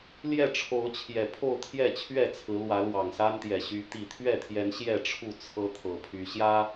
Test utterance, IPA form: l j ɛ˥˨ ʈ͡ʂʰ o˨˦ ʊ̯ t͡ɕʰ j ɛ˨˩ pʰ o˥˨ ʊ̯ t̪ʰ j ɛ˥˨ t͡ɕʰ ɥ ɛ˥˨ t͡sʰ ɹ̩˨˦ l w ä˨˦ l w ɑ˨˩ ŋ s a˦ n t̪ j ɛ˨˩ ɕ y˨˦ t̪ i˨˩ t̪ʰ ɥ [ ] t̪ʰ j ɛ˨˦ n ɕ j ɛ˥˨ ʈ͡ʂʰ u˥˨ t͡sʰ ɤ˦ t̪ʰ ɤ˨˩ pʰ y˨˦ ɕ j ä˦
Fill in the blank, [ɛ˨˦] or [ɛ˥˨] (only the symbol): ɛ˥˨